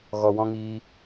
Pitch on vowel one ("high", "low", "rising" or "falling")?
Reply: low